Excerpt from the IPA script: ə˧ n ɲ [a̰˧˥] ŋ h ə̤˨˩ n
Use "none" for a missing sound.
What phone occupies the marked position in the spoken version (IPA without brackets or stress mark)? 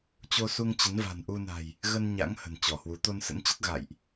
a̰˧˥